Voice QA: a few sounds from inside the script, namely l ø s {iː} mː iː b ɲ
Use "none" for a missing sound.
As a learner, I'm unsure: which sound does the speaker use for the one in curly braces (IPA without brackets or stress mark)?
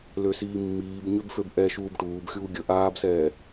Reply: iː